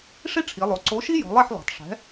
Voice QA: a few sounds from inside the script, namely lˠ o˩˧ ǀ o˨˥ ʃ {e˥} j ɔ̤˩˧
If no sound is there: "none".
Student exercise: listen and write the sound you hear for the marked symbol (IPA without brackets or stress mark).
i˥